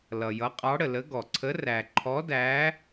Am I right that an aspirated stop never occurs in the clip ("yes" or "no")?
no